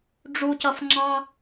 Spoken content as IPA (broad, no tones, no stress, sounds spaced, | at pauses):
ɖ͡ʐ u c ʌ f ŋ͡ǁ ɑ